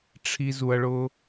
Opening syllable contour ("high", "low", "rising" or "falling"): high